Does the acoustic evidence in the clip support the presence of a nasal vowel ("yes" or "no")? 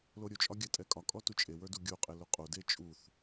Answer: no